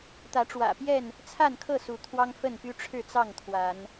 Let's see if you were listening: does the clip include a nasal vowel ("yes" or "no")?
no